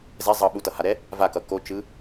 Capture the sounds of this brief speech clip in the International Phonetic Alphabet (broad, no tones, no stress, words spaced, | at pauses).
zɛ zˤʌ ɓutʌhaɾɛ | vakʌ kot͡ʃɯ